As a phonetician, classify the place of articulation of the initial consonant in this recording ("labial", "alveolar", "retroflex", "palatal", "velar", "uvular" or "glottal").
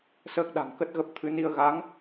alveolar